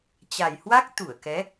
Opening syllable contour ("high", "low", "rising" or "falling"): low